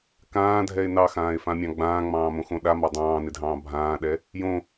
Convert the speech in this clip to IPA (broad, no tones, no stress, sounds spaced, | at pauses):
k ãː dʱ ɛ e̯ n ɑ x ãː e̯ f ã mʲ ɑ̃ ɡ͡b ãː ŋ͡m ɑ̃ː m õ x õ ɗ a m ɑ dˤ ɑ̃ː n ɪ dʱ ɑ̃ː bʱ ãː ɗ ɛ | j õ